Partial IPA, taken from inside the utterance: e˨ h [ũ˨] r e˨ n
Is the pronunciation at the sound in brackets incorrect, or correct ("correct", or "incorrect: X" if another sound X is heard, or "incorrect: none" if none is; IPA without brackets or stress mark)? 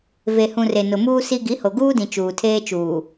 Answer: correct